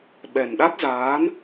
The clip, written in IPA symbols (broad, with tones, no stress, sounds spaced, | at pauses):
ɓ ɛ˨˩ n ɗ a˦˥ t̚ z aː˨˦ n